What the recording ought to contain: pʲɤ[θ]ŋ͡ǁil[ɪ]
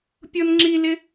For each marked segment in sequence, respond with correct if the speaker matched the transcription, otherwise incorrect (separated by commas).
incorrect, correct